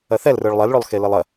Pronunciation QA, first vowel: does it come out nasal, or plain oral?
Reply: oral